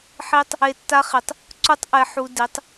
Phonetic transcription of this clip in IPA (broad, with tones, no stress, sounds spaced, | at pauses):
ħ i˦ tˤ | e˧ tː a˦ χ i˨ tˤ | ǀ u˦ tˤ ʔ ɛ˧ ħ u˧ d i˨˦ tˤ